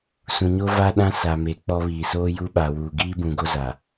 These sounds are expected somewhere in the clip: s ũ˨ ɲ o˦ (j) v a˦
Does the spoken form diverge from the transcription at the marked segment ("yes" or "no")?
yes